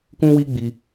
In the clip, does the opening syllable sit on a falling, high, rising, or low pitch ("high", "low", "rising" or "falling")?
high